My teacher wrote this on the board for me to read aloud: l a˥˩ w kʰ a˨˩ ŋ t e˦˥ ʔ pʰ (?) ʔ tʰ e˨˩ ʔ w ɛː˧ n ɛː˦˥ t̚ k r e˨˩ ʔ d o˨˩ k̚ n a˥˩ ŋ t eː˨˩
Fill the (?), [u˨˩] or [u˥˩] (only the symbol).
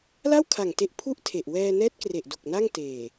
u˥˩